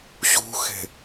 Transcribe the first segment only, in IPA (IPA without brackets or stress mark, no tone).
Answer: ɕ